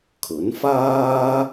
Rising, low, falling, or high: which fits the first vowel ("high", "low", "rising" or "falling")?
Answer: rising